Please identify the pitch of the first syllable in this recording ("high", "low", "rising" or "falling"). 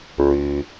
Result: low